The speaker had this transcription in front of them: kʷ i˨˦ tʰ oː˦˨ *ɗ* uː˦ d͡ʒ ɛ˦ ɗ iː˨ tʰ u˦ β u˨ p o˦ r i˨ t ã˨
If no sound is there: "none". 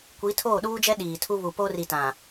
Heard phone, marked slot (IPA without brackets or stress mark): ɗ